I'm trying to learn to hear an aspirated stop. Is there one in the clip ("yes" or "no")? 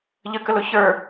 no